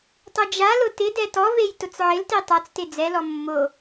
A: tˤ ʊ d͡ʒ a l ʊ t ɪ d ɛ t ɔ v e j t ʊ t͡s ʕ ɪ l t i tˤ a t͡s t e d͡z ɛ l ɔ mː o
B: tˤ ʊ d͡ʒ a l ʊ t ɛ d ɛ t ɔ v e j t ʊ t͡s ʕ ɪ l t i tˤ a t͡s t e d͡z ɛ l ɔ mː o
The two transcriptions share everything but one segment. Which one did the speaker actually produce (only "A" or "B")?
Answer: A